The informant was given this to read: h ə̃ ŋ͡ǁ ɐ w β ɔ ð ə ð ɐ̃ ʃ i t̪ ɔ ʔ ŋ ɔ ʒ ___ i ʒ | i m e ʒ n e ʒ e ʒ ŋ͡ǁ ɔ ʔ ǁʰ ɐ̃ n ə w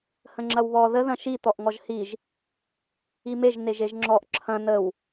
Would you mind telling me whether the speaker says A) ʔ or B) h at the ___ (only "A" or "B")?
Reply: B